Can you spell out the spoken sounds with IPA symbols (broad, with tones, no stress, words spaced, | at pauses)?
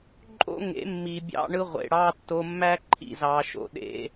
ǃʼo̰˦ŋḛ˨˦mːi˨ bʲɑ̰˦ɳɯ˦ʁʷḛ˧ɽɑ˦ tːo˧mːæ˦ǃʰḭ˨zɑ˨ ʃo̰˨ɗḛ˦